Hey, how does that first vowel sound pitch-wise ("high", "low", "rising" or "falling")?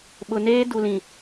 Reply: low